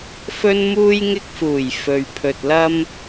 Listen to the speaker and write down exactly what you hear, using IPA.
f ɵ˧ n m uː˧ j ŋ ɪ˧ k̚ f uː˨˩ j f ɵ˨ ɥ pʰ ɵ˨ t̚ l ɐ˥ m

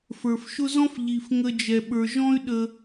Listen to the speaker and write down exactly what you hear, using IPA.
f ə˞˩ f ʃ ʊ˦ z ɔ̃˥ f ʎ i˩ f ŋ ə˨ d͡ʒ ɛ˩ ɓ ə˞˩ ʒ ɔ̃˦ y̯ ɗ ə˨

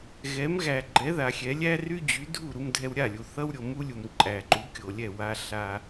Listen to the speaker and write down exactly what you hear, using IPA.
ɣ ɛ˩˥ m ɣ æ˩ ɡ͡ǃ ɛ˩˥ ð a˩ xʲ ɛ˩˥ lʲ æ˥ r y˥ d͡ʑ y˩˥ dʱ u˥˩ ɾ u˧ m dʱ ɛ˧ w ɾʲ a˥˩ lʲ u˩ θ ʌ˥ w ɾʲ o˩ m u˥ lʲ u˩ m ǃʼ æ˩ ǃ u˩˥ kʲ o˩ lʲ ɛ˥˩ w a˧ ɬ a˧

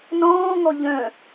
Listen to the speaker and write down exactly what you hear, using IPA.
n ɔ̃ː ŋ ɔ ʎ œ̃

